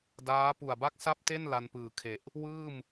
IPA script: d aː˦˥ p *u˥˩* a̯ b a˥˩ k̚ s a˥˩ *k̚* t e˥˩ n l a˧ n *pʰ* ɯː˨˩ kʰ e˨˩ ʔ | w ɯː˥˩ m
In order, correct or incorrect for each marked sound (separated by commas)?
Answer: incorrect, incorrect, incorrect